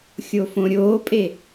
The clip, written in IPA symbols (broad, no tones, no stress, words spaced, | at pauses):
xʲofõɾʲoːpʼe